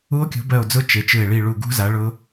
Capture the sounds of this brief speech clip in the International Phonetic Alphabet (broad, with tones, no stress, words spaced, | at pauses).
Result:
u˦˥o̯kʲṳ˨˥bɜ˦˨o̯d͡zʊ˦˥ t͡ʃe˨˥t͡ʃɯ˦˨e̯ ɭi˦˨ɭu˦˨ɡṳ˦˥za˨˥ ɭʊ˦˥